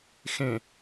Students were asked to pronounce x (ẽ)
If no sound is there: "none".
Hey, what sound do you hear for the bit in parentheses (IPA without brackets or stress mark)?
ẽ